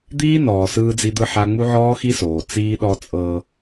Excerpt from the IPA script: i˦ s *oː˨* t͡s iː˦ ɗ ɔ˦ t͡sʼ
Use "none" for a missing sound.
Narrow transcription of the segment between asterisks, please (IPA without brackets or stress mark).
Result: oː˨